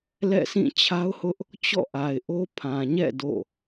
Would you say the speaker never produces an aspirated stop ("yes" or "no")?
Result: no